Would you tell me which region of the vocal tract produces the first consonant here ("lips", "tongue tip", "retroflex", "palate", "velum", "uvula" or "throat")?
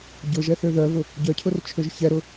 palate